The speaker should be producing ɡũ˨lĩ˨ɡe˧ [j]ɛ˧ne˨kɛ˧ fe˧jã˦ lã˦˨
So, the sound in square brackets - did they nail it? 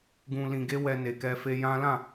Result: no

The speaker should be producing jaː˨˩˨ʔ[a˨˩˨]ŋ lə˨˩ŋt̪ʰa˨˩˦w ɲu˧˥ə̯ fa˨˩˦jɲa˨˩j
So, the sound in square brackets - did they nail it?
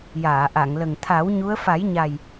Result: yes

